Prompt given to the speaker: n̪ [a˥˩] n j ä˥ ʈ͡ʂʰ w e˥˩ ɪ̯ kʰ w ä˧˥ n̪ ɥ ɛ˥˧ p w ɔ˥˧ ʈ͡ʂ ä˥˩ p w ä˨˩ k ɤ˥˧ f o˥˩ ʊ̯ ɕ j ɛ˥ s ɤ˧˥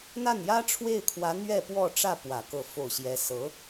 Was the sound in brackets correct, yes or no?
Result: yes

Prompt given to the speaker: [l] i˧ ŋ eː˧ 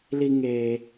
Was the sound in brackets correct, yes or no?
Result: yes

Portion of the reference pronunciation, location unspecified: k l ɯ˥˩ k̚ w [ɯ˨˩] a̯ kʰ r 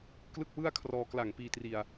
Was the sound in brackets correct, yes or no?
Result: no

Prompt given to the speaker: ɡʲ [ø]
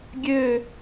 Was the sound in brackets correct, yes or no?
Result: yes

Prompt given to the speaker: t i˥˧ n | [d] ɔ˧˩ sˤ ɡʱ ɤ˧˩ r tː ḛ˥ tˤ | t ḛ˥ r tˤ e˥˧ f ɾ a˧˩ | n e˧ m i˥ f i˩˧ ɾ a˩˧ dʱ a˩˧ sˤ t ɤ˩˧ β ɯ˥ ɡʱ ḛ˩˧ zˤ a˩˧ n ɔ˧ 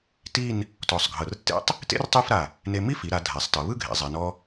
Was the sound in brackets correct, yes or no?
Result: no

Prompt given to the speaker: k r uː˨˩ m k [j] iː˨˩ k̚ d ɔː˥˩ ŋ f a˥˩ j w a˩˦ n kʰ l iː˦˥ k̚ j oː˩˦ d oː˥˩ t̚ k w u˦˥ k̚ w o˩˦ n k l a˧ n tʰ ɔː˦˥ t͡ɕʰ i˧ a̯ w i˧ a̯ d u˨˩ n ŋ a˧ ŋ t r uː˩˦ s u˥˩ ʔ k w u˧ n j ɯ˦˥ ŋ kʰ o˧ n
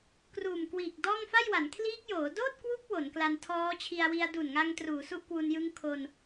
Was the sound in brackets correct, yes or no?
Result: no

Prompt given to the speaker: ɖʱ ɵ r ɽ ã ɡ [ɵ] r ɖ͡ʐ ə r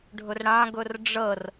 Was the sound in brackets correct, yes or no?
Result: yes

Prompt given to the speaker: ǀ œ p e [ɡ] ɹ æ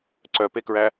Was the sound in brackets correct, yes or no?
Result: no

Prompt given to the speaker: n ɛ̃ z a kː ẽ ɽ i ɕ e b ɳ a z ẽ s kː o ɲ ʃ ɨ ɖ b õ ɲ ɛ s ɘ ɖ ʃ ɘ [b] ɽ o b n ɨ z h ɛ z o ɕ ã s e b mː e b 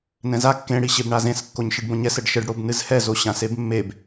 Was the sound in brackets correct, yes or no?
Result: no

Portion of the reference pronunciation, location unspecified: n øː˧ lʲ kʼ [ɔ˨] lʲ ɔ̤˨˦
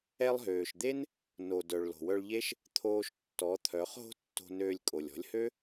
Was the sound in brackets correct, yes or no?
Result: no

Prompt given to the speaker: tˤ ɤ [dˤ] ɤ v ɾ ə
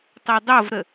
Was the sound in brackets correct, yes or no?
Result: yes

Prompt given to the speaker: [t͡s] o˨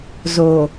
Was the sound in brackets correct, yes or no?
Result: no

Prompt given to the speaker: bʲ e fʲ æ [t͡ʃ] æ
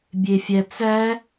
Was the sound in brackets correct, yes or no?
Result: no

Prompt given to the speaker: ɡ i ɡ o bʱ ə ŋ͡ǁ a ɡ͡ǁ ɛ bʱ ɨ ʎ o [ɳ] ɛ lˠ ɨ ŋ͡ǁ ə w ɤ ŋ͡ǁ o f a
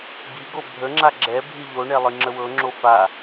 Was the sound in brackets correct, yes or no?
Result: yes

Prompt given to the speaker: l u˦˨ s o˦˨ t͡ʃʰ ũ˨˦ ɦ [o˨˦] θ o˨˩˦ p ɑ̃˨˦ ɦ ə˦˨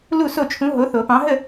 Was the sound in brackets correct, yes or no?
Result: yes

